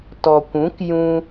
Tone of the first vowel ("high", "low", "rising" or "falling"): low